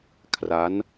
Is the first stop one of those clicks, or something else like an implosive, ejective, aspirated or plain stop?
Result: aspirated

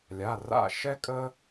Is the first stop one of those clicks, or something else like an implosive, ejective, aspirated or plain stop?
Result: ejective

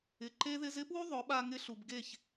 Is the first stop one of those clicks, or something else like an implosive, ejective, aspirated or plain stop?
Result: click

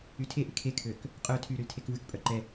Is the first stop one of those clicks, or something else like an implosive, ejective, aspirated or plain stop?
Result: aspirated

